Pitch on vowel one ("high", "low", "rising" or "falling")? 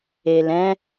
low